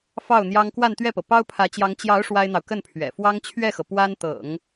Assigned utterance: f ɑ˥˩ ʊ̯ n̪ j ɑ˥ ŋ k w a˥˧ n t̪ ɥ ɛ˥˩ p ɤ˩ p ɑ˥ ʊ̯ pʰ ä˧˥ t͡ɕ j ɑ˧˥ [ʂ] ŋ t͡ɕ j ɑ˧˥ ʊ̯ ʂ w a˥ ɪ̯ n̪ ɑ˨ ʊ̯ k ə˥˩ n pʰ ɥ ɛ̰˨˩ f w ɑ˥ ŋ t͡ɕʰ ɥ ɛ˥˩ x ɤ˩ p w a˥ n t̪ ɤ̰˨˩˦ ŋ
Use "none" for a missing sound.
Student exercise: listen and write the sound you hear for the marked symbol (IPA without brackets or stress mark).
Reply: none